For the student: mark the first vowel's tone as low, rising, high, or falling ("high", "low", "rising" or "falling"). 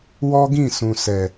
high